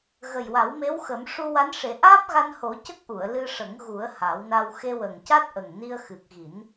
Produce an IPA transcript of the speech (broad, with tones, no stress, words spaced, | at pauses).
ɣə˨˩jwa˨˩˦wme˧˥wxə˨˩˦m ʂu˧wa˧˥nʂe˨˩˦ ʔaː˦˥p̚ɣa˧nho˨˩˦ cə˦˥k̚ʔu˨˩˨ə̯ lɨ˧ʂə˨˩˦ŋ ɣu˨˩˦ə̯ ha˨˩˦wna˧w xe˧wə˨˩ŋca˦˥t̚ ʔə˨˩ŋni˧ə̯ xɨ˨˩k̚ɣi˨˩˦n